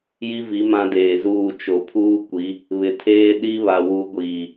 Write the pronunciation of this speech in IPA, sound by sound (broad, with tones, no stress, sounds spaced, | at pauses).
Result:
j i˦ v i˨˦ m ã˦ d eː˨ z uː˦˨ t͡ʃ o˨ pʰ uː˦ kʷ i˨˦ | β ɪ˨ tʰ eː˦ ɗ i˦ β a˨ w u˨˦ ɡʷ iː˨